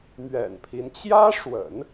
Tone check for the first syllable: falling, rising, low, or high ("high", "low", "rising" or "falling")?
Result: low